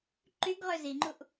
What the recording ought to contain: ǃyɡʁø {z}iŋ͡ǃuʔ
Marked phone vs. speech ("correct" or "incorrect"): correct